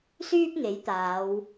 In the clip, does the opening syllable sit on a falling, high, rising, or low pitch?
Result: high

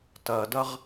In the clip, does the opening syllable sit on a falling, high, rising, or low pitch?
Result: low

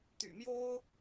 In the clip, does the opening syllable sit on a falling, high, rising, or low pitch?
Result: low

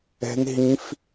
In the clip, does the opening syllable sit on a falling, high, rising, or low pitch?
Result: high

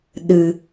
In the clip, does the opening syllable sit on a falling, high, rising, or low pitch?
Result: low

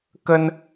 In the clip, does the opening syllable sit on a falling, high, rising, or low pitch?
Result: high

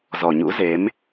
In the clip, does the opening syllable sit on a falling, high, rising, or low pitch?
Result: low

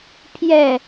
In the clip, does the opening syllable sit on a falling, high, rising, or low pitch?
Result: falling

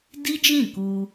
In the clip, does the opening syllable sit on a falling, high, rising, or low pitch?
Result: high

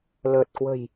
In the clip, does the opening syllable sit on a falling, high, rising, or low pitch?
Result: low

